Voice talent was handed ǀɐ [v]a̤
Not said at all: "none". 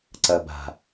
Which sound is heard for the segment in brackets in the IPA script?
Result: b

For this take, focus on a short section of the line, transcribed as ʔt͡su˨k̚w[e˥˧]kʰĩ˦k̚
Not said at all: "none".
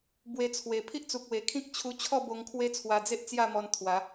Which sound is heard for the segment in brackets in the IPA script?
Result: e˨˩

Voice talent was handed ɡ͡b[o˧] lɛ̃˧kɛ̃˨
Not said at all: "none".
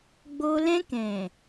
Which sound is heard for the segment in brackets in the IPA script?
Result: o˧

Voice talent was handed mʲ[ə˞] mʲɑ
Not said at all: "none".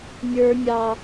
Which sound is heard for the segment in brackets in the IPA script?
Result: ə˞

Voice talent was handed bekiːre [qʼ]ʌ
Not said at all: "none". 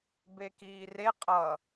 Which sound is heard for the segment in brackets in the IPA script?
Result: qʼ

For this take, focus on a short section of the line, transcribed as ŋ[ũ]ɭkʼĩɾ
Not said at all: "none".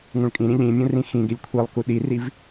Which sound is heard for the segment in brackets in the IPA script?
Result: ũ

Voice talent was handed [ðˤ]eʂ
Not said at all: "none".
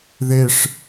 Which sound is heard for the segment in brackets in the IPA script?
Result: ð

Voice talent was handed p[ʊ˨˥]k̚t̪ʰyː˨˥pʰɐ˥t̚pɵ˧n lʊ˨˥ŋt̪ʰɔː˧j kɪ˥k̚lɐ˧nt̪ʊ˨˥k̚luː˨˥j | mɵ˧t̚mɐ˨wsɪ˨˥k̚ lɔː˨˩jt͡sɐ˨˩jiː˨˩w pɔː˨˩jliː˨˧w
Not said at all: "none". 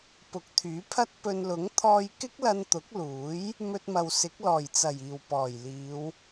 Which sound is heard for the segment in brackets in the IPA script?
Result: ʊ˨˥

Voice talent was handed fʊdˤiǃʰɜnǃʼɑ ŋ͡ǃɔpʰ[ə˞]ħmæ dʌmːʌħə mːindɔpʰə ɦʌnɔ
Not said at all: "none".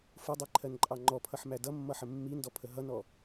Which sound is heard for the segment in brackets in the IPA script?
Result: ʌ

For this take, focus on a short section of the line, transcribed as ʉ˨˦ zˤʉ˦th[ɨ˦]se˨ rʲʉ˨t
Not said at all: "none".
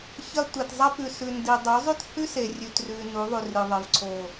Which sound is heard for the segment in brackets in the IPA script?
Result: ʉ˦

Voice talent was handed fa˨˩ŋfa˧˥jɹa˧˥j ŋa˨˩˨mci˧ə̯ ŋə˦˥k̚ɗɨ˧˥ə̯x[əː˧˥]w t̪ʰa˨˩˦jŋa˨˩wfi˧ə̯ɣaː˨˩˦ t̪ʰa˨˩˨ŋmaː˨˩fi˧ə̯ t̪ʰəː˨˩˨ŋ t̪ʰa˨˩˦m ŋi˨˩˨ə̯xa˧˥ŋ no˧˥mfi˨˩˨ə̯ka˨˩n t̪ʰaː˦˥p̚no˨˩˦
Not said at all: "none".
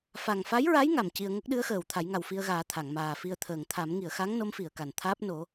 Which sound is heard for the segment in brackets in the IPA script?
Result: əː˨˩˨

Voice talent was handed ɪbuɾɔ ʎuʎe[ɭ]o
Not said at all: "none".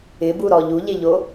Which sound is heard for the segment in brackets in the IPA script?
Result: ʎ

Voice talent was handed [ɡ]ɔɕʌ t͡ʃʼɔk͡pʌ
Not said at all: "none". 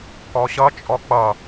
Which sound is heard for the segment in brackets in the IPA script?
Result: k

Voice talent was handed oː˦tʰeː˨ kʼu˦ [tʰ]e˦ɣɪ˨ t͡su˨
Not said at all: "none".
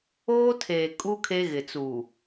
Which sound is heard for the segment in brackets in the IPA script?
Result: kʰ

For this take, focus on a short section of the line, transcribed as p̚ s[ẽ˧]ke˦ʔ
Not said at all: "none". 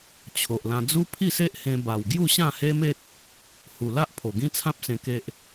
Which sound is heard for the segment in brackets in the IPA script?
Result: ẽ˧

